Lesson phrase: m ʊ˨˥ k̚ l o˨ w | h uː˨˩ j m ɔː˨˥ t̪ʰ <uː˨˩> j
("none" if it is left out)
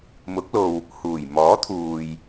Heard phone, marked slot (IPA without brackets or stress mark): uː˨